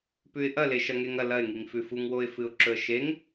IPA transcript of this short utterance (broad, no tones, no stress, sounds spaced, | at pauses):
p ʉ ɪ̯ ʔ ɐ l e ʃ ɐ ŋ e ŋ ɐ l ɐ ɪ̯ ŋ i ŋ f ʉ f u ŋ w o ɪ̯ f ɨ ʊ̯ ǁ ɵ ə̯ ʃ e ŋ